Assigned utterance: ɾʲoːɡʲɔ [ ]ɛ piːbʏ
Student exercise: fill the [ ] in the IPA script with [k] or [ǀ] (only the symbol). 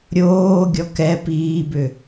k